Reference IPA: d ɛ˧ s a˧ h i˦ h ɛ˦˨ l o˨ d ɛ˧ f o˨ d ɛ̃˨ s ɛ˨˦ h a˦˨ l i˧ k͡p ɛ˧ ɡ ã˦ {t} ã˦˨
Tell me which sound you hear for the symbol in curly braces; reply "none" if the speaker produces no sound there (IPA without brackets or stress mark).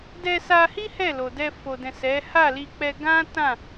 t